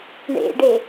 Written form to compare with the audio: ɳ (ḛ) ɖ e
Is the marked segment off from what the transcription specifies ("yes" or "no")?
no